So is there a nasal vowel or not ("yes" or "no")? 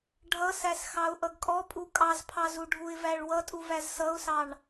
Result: no